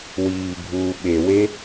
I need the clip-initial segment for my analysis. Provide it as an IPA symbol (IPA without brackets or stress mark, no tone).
w